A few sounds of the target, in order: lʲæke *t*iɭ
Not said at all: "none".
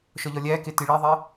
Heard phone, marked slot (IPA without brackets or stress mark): t